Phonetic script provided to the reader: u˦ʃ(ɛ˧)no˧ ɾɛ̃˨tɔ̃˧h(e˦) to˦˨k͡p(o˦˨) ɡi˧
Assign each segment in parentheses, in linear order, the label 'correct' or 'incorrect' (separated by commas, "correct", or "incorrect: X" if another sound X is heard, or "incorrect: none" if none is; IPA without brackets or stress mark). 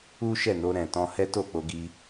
incorrect: ɛ˦˨, incorrect: ɛ˦, incorrect: o˧